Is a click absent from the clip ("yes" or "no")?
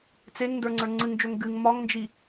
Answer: no